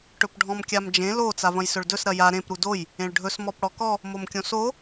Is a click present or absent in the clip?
absent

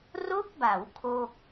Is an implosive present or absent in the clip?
absent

